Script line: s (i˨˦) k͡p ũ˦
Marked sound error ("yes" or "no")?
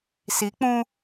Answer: no